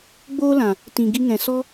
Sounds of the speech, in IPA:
ɡ͡b oː˦ l ã˨ | t ĩ˨ ɡ i˧ ŋ ɛ̃˨ s ɔ˦

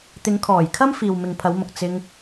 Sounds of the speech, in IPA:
t̪ ɪ˨˧ ŋ kʰ ɔː˨˩ j kʰ ɐ˥ m f iː˨ w m ɪ˨ ŋ pʰ ɐ˨˧ w m ʊ˨ k̚ t͡s ɪ˧ ŋ

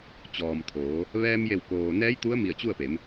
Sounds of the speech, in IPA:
t͡ɕ ɔː˩ m t̪ʰ oː˩˧ | ʋ ɛː˧ m j e˧˩ w k oː˩ n ɛː˧˥ j t̪ u˧˥ ə̯ m i˧˩ ə̯ t͡ɕ u˥˨ ə̯ p e˩˧ m

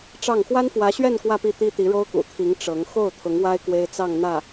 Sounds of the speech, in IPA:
ʈ͡ʂ ɑ˥˩ ŋ x w a˥ n f w ä˧˥ ɕ ɥ ɛ˥˧ n k w ä˥˧ p i˥˩ t̪ i˥ t̪ i˧˥ ɻ o˥ ʊ̯ k ṵ˨˩ t̪ʰ i˧˥ ŋ ʈ͡ʂ ɤ˧˥ ŋ x o˥˩ ʊ̯ t̪ʰ ʊ˧˥ ŋ w a˥ ɪ̯ k w e˥ ɪ̯ t͡s ɑ˥˧ ŋ n̪ ä˥˩

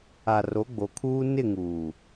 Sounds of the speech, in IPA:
a˨ r o˨˦ ɡ͡b o˨ kʰ uː˦ n ɪ˦˨ ŋ uː˨

